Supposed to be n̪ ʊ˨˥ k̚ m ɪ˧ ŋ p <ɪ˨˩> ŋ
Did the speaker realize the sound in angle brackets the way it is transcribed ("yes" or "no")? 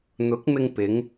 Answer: no